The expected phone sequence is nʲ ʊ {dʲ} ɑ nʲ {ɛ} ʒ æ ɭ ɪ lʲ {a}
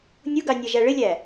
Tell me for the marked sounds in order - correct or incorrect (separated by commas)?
incorrect, correct, incorrect